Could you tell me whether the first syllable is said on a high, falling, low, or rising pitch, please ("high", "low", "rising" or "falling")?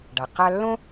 low